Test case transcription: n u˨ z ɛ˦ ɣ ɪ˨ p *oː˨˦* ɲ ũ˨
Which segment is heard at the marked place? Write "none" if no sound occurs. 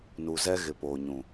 oː˨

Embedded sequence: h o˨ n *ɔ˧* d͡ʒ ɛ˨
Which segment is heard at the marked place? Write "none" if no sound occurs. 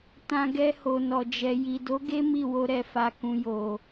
ɔ˨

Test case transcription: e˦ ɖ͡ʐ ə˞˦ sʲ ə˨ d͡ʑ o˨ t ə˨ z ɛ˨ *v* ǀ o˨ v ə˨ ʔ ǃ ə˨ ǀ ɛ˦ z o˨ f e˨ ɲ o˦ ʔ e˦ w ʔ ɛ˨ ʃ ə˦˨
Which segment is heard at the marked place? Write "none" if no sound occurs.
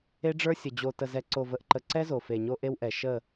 none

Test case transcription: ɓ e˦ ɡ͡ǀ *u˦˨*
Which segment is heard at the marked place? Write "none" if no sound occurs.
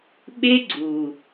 u˨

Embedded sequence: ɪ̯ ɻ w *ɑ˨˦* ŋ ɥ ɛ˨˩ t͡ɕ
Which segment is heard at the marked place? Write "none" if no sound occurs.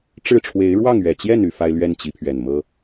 ɑ˥˨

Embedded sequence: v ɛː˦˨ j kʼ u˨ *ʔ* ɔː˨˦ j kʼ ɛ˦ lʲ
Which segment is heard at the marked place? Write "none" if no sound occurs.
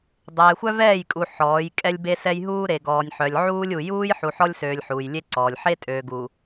ħ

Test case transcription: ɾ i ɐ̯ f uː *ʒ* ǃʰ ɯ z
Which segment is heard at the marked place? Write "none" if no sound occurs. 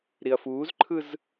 z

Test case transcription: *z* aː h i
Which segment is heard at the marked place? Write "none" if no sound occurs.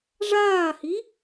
ʐ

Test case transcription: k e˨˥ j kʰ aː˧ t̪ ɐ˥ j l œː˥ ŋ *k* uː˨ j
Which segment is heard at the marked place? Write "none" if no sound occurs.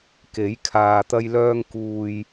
k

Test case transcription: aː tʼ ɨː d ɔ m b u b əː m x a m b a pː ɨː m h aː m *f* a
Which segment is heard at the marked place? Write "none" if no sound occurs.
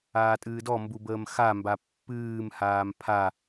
pʰ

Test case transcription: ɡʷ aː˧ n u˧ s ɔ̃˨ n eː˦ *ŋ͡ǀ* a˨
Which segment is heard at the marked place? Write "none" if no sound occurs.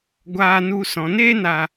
n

